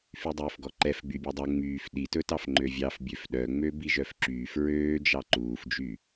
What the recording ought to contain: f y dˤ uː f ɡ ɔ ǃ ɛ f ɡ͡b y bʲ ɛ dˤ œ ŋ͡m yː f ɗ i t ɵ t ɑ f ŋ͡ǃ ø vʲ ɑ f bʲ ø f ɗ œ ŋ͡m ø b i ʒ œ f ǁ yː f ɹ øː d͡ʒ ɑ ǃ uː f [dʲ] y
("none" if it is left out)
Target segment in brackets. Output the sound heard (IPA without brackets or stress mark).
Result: d͡ʒ